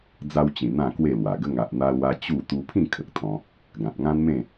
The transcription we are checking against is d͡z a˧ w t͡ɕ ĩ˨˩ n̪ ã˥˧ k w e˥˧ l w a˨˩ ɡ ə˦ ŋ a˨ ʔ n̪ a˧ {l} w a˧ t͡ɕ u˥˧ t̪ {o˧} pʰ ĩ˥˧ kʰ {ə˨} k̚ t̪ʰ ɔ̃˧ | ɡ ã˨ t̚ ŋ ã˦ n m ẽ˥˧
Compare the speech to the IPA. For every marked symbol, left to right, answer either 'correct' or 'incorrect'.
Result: correct, incorrect: u˧, correct

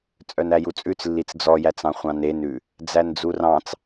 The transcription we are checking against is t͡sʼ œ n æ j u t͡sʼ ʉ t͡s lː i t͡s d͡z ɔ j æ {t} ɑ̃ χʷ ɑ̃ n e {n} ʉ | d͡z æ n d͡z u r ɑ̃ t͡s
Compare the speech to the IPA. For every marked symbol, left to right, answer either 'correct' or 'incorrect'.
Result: incorrect: t͡s, correct

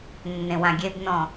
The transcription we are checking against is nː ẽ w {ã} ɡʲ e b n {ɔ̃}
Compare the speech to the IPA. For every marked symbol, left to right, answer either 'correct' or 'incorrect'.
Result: correct, correct

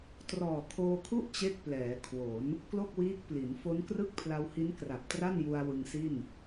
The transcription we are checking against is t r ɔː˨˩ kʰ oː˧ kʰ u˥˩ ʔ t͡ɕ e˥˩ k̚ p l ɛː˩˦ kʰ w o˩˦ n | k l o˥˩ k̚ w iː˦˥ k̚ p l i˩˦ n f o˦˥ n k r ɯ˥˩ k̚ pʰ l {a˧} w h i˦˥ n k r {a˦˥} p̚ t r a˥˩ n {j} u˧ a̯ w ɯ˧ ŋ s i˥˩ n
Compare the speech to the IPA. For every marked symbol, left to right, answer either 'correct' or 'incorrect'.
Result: correct, incorrect: a˨˩, correct

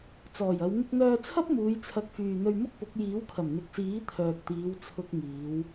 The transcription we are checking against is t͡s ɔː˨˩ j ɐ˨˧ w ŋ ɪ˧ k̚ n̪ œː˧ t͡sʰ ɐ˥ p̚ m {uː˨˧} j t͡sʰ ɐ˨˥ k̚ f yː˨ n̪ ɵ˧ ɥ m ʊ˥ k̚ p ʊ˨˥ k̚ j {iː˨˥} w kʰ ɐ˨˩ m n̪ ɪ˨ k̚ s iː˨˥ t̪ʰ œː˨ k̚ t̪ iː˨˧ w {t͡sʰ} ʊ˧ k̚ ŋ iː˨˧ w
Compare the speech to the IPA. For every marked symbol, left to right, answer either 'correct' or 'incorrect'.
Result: correct, correct, correct

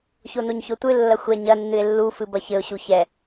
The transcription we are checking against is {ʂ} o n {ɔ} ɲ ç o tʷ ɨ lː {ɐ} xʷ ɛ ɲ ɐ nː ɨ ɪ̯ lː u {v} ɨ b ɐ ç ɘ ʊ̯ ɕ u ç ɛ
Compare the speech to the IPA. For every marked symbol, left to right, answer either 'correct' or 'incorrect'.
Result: incorrect: ç, incorrect: o, correct, incorrect: f

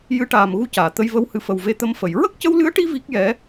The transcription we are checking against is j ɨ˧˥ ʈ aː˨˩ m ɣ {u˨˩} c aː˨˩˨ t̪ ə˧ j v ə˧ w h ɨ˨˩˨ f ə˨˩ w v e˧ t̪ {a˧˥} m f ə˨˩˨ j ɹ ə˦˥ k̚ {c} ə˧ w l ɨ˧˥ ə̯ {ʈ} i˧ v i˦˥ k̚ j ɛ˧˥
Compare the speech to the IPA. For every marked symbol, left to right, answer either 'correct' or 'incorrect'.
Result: incorrect: u˧, incorrect: ə˧˥, correct, correct

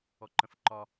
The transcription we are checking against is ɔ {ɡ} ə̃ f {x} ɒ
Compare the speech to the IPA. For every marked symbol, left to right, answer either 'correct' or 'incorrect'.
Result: incorrect: ǃ, incorrect: ǃ

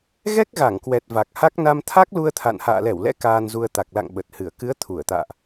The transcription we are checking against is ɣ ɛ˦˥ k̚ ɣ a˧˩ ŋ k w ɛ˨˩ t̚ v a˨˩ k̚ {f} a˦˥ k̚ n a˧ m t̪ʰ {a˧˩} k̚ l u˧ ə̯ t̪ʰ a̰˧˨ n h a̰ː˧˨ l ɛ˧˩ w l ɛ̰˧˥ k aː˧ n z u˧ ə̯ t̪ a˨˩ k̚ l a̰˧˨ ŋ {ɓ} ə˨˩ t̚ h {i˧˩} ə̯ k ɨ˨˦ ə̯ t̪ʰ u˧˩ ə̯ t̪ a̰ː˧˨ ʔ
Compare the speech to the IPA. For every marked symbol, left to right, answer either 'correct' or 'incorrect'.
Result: incorrect: h, incorrect: a˦˥, correct, incorrect: ɨ˧˩

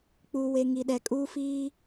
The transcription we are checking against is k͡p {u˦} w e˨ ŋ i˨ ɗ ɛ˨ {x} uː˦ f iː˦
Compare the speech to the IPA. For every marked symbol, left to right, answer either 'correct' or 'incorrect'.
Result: incorrect: u˨, incorrect: kʼ

